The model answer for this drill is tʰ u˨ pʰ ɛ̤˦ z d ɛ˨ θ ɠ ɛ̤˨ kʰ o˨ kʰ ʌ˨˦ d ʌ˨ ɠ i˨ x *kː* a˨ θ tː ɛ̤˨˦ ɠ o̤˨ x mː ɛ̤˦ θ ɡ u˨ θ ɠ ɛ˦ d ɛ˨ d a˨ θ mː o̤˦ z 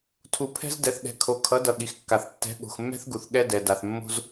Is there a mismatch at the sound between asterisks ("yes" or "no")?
no